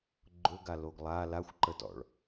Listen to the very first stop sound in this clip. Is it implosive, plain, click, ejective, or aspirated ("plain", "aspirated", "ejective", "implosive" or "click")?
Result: click